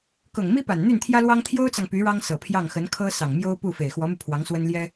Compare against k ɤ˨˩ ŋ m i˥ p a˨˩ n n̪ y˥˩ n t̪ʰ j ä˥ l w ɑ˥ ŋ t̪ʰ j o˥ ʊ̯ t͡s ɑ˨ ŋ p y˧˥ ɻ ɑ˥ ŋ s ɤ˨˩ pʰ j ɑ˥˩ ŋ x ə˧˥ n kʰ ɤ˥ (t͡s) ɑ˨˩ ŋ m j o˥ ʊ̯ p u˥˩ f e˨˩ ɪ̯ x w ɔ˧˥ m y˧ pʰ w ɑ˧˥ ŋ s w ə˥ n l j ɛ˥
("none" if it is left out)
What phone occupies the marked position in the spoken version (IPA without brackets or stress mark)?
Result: s